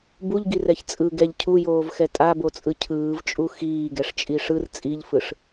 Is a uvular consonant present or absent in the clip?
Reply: absent